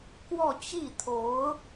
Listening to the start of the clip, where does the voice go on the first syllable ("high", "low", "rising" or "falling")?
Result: falling